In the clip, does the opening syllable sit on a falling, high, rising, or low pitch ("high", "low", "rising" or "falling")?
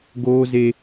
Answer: high